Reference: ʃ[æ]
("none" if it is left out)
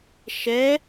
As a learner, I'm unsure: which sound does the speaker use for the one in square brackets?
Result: ɛ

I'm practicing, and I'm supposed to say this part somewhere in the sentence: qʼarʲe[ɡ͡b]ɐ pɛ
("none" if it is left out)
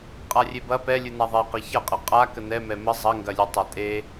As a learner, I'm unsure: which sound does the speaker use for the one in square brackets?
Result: b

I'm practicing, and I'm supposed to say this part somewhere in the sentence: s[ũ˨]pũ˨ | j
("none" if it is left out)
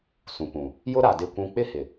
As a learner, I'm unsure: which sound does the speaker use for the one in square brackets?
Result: ũ˨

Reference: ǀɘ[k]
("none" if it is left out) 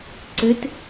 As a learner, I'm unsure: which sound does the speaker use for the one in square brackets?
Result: t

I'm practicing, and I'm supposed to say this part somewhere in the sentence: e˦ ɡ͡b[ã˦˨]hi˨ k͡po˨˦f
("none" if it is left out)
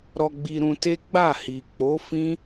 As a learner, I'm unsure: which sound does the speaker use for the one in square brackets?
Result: a˦˨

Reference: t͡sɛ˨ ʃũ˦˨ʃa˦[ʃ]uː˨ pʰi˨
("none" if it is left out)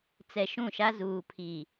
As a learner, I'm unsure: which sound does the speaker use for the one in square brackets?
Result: z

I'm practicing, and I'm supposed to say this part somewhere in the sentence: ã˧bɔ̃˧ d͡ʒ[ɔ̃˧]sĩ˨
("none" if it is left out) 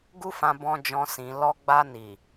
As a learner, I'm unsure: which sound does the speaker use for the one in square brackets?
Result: ɔ̃˧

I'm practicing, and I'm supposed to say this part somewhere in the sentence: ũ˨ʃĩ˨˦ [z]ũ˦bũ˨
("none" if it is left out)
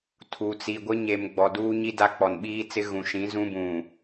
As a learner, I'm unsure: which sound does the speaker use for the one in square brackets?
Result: z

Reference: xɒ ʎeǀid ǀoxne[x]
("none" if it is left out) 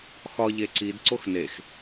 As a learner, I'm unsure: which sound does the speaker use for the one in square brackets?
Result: x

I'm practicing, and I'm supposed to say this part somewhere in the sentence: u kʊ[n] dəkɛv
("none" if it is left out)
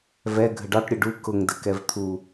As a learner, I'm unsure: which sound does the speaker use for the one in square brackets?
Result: ŋ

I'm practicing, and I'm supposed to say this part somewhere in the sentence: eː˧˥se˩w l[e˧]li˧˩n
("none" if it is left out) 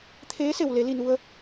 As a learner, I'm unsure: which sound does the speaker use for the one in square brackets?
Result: e˩˧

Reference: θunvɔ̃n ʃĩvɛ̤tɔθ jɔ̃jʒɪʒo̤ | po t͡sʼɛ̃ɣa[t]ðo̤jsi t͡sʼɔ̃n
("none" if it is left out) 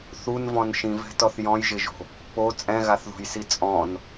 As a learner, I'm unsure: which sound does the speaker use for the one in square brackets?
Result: θ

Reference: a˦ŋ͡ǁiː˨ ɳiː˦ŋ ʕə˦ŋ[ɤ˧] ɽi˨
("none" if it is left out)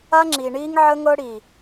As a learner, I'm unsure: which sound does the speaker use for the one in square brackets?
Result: ɤ˦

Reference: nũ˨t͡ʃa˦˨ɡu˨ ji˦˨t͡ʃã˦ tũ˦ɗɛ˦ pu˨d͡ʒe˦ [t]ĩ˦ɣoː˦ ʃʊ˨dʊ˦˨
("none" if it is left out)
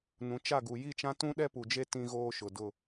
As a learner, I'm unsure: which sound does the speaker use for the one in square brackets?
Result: t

